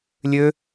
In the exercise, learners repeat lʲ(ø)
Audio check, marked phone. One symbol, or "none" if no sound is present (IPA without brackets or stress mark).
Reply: ø